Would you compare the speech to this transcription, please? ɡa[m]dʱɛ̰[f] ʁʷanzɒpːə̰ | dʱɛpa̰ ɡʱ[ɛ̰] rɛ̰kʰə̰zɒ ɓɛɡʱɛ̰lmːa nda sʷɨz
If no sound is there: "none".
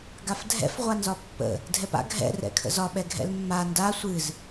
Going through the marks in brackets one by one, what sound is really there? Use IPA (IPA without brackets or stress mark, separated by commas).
f, f, ɛ̰